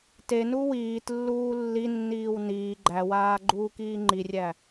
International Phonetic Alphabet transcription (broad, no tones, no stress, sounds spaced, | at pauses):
t e n u w iː t lː uː lː i nː iː w n iː ɡ͡ǃ æ w aː ɡ͡ǃ uː k iː ŋ͡ǃ i rʲ æ